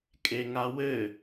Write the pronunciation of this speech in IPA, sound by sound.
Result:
kʼ e ŋ a w ɘ

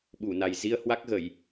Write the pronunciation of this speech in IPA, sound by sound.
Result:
ɓ u˧˩ n a˨˩ j z i˧ ə̯ h w a˦˥ k̚ ɣ ə˧˩˨ j

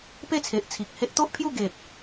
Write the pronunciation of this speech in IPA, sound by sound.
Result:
p e˥˧ t͡sʰ e˨ ʔ t͡sʰ i˨ k̚ h e˦ ʔ t̪ o˦ ʔ pʰ j u˥˧ ɡ e˨ p̚

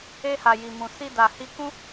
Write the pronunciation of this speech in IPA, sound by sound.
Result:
e˧ h a˨ j i˨ m ũ˨ s i˧ d a˨ h i˧ k ũ˦

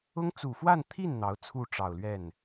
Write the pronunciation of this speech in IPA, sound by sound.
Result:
ʊ˥ ŋ t͡s u˨˩ f w a˥˧ n t̪ʰ i˥˩ n n̪ ɑ˧˥ ʊ̯ t͡sʰ u˥˩ ʈ͡ʂ ɑ˨˩ ʊ̯ l ɥ ɛ˥˩ n

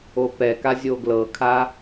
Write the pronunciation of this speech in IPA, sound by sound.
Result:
o p ɛ k a zʲ o ɡ l ɤ kʰ a

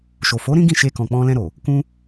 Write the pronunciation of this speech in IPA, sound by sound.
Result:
ʃ o˨ f o˨˦ ɾ ĩ˦ ɡ ĩ˦˨ ʃ e˧ k ɔ̃˨ k͡p ɔ̃˧ l ɛ̃˧ ɾ o˨ | k ũ˧

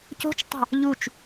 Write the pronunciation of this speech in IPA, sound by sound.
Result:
c o̤ t͡ʃ tˤ ɑ̤ | ʎ u t͡ʃ

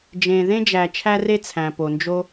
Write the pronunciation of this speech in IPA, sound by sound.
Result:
d͡ʒ ẽ˨ ð ẽ˥ d͡ʒ æ˨ t͡ʃʰ æ˦ r e˦ t͡sʰ æ̃˩ p o˩ n d͡ʒ o˦

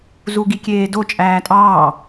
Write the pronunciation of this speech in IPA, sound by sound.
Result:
z u ɡ i kʲ eː d o t͡ʃʼ æː tʼ ɑː

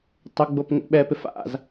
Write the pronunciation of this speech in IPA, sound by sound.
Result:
tˤ ʊ ɡ͡b o p ŋ ḛ ɓ ɛ p ɪ f a̰ z

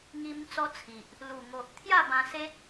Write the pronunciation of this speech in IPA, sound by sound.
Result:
ŋ i˧ m t͡s ɔ˦ t͡sʰ i˨ ʔ | l u˨˩ ŋ o˨ ʔ t̪ʰ j a˥˧ b ã˧ s e˦ t̚

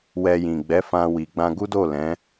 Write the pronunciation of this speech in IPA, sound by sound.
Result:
w ɛ˧ j ĩ˨ ɡ͡b ɛ˨˦ f ã˧ w i˨ ɡ͡b ã˧ ɡ u˦ d o˦˨ l ɛ̃˨˦

